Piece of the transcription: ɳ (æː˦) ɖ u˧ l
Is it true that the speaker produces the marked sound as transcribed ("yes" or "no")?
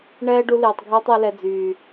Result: no